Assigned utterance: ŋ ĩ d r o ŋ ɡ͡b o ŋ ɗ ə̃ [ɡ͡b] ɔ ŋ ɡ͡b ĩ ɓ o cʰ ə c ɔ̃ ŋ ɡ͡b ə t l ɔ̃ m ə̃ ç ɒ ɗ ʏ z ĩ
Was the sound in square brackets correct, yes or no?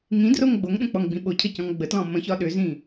no